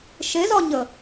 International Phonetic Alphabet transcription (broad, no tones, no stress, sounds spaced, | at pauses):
ʃ e z ɒ ɲ ə